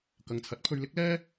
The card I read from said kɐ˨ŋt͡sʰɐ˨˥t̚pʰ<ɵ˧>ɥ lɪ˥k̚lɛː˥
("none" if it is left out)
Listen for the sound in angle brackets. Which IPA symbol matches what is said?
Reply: ɵ˧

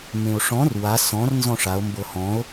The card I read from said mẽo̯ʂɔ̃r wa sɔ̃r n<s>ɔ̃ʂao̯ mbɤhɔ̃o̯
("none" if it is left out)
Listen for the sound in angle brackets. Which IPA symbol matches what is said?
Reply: z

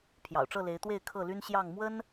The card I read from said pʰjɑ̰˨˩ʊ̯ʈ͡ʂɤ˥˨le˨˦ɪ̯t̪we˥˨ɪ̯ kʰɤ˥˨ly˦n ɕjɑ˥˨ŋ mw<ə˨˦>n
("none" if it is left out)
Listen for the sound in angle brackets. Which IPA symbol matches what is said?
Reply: ə˦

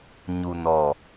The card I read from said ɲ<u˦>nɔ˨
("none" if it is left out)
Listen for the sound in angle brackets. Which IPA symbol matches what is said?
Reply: u˨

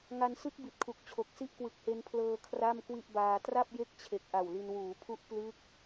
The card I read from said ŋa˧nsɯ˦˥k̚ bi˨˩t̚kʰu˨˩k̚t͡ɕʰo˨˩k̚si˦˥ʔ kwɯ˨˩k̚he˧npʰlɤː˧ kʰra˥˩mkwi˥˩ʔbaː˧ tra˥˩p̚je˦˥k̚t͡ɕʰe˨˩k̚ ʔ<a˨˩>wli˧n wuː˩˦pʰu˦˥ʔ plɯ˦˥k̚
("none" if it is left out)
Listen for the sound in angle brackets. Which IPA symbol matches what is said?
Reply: a˨˩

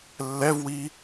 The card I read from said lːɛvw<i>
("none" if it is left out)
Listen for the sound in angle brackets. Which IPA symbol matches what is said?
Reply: i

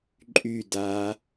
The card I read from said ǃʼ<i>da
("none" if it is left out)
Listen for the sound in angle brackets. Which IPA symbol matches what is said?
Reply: y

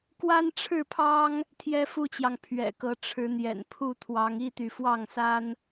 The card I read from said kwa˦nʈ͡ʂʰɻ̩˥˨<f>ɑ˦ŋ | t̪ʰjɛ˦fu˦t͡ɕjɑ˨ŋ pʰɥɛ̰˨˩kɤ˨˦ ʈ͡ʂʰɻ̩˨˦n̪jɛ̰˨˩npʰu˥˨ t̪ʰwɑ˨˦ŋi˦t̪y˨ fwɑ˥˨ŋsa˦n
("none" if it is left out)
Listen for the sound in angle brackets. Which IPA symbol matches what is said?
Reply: pʰ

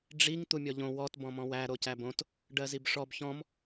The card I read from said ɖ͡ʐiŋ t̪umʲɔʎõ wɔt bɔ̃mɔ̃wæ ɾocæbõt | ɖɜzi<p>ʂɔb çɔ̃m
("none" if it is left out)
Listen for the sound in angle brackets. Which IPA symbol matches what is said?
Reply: b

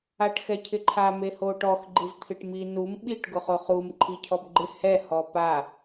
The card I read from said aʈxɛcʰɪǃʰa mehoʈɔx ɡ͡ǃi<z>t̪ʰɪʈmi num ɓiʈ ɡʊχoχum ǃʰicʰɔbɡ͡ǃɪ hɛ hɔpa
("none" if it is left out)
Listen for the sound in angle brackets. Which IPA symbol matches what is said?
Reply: z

